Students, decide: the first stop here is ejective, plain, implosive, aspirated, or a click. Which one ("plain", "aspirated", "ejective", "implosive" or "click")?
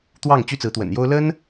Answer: plain